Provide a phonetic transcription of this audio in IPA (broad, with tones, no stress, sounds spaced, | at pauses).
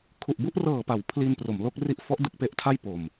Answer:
kʰ u˨˩ ʔ b u˥˩ ʔ r ɤː˨˩ p a˩˦ w pʰ l i˧ n p r o˩˦ m l o˦˥ k̚ r i˦˥ ʔ f ɔ˦˥ ʔ d u˥˩ k̚ p e˦˥ ʔ tʰ a˥˩ j p o˨˩ m